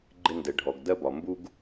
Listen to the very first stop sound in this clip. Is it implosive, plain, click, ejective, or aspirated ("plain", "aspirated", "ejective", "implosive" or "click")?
click